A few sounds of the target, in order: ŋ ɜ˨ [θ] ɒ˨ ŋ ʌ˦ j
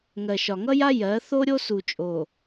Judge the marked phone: incorrect: ʃ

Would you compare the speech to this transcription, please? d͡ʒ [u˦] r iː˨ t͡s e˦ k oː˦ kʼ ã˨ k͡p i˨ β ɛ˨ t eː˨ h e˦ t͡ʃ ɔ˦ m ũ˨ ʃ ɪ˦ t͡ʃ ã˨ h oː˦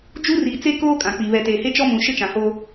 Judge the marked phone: correct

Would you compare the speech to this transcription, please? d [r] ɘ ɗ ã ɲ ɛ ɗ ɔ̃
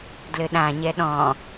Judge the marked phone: incorrect: l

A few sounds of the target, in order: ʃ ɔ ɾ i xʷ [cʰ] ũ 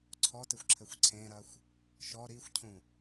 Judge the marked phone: correct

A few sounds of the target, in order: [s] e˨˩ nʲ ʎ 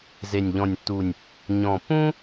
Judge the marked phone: incorrect: z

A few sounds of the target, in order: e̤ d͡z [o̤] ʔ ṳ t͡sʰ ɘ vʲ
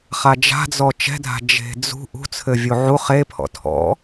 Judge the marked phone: incorrect: ṳ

